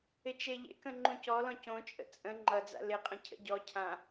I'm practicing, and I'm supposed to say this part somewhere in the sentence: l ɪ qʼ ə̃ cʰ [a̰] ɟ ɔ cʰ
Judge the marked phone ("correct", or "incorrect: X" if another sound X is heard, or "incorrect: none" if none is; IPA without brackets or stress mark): incorrect: ə̰